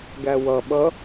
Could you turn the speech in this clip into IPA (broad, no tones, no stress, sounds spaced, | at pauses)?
ɡ æ w ʌ ɓ ʌ